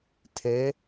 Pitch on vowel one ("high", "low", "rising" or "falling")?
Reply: rising